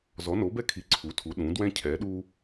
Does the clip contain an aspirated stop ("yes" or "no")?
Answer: yes